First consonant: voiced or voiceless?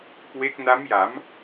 voiceless